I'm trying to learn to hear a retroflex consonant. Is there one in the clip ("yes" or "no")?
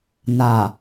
no